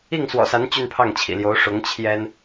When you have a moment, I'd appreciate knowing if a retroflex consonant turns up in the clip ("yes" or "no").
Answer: yes